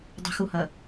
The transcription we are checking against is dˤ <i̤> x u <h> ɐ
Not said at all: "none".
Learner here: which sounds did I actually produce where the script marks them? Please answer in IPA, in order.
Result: i̤, h

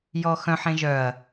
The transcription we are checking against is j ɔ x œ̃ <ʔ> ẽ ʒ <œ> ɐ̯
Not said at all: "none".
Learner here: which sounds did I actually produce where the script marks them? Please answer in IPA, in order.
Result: ħ, œ

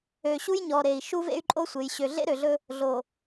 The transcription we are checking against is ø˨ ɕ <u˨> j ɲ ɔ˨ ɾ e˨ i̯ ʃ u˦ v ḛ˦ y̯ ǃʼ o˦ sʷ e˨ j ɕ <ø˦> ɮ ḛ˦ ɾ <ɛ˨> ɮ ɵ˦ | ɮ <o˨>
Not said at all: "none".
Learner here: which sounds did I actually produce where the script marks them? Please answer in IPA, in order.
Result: u˦, ø˨, ø˨, o˨

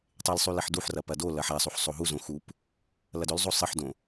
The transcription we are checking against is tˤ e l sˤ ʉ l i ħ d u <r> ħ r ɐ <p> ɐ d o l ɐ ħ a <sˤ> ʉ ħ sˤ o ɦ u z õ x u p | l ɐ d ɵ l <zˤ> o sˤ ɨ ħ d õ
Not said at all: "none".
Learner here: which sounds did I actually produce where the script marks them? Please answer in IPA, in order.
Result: none, p, sˤ, zˤ

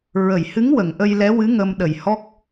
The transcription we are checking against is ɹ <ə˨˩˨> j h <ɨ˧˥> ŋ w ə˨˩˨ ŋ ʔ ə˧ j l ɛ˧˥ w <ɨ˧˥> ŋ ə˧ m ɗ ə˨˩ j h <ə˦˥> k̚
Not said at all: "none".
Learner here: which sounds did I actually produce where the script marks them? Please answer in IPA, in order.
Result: ə˨˩˨, ɨ˧˥, ɨ˧˥, ɔ˦˥

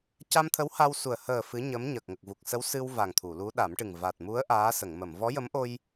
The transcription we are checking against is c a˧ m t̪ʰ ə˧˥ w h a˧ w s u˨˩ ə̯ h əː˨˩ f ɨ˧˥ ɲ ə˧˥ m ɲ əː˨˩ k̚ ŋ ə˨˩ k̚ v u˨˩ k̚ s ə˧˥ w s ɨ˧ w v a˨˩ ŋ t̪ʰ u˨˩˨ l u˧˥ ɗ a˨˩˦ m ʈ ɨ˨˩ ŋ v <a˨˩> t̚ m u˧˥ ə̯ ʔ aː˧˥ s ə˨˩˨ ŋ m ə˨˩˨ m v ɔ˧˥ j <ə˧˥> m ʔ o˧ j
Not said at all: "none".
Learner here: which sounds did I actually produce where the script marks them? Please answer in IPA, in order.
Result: a˨˩, ə˧˥

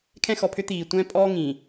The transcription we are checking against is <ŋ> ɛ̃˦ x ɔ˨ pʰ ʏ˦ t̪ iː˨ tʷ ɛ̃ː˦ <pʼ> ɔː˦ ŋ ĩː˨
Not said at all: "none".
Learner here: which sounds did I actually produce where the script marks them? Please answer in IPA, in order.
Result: kʰ, pʼ

